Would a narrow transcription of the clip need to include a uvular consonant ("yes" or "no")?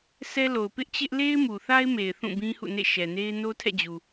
no